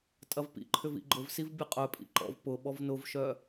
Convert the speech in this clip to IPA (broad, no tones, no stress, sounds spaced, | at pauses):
tʼ ɐ v p ḭ ǃʰ ʏ v ḭ ɡ͡ǃ ʊ v s i v bʲ ɐ qʼ œ pʼ ḭ ǃ ɔ̰ v p ʊ ɓ ɔ v n ʊ v ʃ œ